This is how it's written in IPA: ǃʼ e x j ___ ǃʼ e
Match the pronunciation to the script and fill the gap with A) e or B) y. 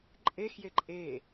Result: A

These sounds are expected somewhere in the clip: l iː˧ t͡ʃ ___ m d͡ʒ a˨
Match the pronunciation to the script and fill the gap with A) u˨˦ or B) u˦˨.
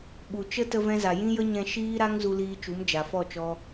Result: A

